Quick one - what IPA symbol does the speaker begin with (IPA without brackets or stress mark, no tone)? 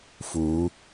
f